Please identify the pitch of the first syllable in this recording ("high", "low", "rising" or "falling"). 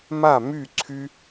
falling